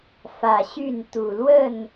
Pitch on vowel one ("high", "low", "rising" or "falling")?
low